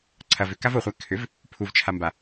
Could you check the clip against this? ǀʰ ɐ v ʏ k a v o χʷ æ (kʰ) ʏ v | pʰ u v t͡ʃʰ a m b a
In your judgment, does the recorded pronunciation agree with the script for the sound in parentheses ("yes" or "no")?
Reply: yes